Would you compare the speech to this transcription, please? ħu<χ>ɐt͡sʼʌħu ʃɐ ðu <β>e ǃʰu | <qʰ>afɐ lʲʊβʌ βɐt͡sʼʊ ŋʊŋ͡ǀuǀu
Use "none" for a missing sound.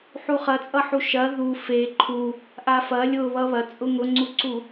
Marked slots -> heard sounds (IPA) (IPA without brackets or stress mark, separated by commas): χ, f, ʔ